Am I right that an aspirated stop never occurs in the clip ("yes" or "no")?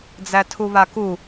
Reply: no